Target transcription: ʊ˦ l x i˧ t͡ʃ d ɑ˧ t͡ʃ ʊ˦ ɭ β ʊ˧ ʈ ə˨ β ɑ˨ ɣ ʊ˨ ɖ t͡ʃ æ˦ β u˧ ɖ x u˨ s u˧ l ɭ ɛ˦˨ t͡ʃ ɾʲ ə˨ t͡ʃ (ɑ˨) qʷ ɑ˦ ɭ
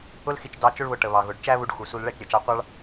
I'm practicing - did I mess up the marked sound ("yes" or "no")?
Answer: yes